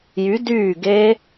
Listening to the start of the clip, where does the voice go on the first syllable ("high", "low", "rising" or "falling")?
rising